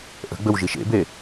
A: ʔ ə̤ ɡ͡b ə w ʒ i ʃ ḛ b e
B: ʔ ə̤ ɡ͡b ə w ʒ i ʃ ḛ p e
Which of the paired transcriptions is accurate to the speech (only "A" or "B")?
A